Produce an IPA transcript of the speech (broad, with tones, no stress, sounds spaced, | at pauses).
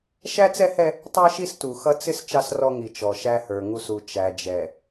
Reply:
ʃ æ˦ t͡s ɛ˦ h ɛ˦ | tˤ ə˞˦ ʃ i˦ s t u˨ x ʌ˦ t͡s ɪ˦ s t͡ʃ ɑ˦ s r ɔ˦ ŋ i˨ t͡ʃ ɔ˨ ʃ æ˦ h ə˞˨ ŋ u˦ s u˨ t͡ʃ æ˨ d͡ʒ ɛ˨